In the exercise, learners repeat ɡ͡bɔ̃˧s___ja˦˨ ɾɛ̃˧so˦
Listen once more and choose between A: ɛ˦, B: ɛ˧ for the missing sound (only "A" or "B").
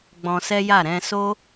A